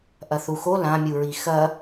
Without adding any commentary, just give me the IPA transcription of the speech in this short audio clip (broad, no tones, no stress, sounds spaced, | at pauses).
ʔ ɐ θ u x o l ã mʲ u ɹ i x ɐ